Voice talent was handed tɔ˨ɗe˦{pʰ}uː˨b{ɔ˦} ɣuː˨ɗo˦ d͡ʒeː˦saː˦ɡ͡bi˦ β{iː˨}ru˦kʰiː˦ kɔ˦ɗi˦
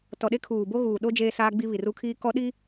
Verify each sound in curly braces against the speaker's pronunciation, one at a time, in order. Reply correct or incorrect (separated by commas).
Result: incorrect, incorrect, incorrect